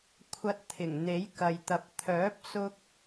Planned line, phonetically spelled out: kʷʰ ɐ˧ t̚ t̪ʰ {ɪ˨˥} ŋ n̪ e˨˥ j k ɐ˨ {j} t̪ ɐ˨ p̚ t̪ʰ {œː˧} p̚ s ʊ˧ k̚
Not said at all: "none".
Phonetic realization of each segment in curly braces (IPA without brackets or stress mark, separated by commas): ɪ˨˩, j, œː˨˥